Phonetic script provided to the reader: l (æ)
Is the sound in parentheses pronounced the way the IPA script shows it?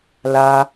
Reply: no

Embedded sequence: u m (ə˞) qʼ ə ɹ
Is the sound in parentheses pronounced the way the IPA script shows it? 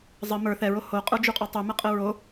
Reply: no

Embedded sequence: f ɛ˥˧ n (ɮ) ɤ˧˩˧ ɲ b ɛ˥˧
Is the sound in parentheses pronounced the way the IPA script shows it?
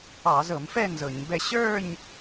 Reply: no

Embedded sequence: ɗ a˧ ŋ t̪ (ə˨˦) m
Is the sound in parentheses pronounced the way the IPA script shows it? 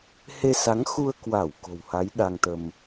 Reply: no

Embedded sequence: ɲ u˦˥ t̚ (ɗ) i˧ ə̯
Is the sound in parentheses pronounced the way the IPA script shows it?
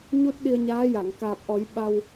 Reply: yes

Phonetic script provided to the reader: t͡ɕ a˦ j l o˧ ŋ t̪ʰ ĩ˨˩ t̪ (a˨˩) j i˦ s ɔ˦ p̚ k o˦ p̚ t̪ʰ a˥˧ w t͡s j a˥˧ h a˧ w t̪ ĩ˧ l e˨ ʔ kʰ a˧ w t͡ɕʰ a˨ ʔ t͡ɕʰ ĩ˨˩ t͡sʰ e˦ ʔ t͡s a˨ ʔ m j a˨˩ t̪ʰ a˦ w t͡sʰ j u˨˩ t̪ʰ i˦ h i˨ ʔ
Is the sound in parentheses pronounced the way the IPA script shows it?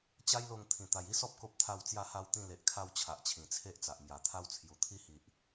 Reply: yes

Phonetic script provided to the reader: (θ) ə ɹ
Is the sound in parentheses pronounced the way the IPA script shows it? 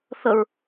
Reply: yes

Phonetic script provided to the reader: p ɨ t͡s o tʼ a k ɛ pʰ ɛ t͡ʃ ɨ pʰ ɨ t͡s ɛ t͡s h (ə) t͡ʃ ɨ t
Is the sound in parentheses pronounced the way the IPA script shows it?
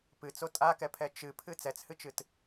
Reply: no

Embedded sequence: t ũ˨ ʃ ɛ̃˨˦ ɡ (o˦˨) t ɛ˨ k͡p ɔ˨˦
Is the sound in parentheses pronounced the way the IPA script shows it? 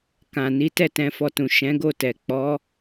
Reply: yes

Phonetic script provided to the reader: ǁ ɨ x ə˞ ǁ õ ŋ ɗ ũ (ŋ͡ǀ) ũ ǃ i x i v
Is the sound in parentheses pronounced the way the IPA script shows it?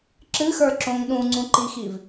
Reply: yes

